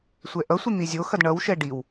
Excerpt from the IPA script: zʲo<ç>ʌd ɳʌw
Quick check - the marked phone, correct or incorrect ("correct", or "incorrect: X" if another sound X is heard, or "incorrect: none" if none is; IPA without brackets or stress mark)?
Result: incorrect: x